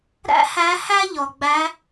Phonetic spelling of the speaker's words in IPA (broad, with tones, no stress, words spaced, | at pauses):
ɾæ̰˥hæ˧˥ hæ˥ʎɔ˩ɡ͡bæ˧˥